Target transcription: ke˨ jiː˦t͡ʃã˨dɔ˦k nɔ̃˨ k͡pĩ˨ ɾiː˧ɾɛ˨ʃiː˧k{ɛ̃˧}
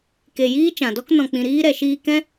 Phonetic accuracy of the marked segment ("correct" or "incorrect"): incorrect